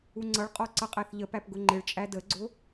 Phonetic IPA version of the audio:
u ŋ͡ǀ ʌ ɭ qʼ ɔ ǀ ʌ qʼ æ θ ʎ ə p æ p ɡ ʊ ŋ͡ǃ ɪ ɭ t͡ʃʼ æ d ə ɡ͡ǀ ʊ

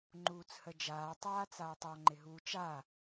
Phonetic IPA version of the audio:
ŋ͡ǃ uː t͡s h ə d͡ʒ aː tˤ aː t͡s aː tˤ ɔ ŋ͡ǃ ɪ ɦ uː t͡ʃ a

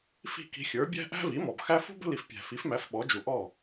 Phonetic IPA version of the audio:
f i̤˥˩ k i̤˧ xʲ ə˞˩˥ bʲ æ̤˥ ʔ æ̤˥ v i˩˥ m ɔ˩ b x æ˥ f ṳ˥ b ə̤˥ l i˩ f pʲ æ̤˩ f i˩˥ f m æ˩˥ f ɓ ɔ˩˥ d͡ʒ u˩ ʔ ɔ˥˩

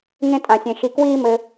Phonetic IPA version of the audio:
ŋ ẽ˧ tʼ ã˩ sʲ ẽ˩ ʃ i˩ k w iː˧ m ɘ˩

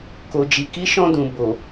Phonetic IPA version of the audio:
k o˨ d͡ʒ i˨ k i˨˦ ʃ ɔ̃˧ d ũ˨ b o˨

